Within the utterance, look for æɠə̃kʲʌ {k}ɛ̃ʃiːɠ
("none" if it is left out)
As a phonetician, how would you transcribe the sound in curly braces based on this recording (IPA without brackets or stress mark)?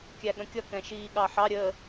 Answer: k